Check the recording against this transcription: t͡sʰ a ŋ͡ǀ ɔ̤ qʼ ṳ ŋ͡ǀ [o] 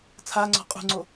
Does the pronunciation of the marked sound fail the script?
no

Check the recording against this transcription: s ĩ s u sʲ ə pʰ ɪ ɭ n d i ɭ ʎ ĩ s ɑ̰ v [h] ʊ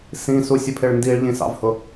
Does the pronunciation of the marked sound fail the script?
no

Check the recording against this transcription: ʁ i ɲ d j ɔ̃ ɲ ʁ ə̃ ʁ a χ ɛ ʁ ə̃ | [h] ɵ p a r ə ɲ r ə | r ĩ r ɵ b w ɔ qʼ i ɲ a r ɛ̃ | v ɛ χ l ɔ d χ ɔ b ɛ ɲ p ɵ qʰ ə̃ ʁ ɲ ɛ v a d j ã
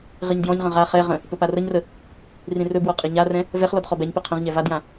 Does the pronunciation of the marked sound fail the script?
yes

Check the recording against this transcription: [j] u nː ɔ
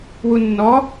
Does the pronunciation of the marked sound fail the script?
yes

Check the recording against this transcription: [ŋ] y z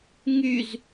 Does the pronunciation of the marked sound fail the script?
no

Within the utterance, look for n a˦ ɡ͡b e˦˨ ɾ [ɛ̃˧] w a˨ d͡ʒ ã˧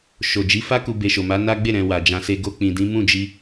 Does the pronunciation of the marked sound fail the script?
yes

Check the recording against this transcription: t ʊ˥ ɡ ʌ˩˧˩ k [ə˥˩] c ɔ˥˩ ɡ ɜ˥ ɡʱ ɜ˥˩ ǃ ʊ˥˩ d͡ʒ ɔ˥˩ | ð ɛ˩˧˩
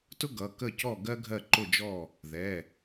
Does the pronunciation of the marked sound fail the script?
no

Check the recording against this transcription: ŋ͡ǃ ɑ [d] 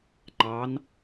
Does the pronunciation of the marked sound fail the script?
yes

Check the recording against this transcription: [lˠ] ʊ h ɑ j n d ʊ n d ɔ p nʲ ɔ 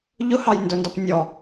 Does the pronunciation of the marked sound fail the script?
yes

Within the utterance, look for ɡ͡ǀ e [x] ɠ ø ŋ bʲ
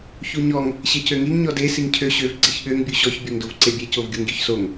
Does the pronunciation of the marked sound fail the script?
yes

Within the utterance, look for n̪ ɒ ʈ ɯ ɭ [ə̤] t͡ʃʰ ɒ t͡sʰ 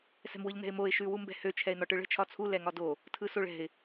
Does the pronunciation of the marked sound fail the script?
no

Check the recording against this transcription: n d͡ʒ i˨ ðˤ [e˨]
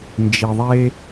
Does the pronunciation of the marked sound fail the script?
yes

